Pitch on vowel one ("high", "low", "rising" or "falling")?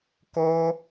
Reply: high